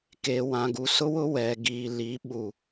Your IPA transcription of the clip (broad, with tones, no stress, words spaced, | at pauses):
keː˨wã˨ɡu˨ sʊ˦wʊ˦ wɛ˨ɡiː˨ li˨˦ ɓu˨